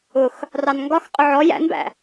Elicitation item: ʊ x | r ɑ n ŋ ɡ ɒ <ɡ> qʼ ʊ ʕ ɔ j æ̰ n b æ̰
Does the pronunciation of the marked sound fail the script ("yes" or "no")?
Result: yes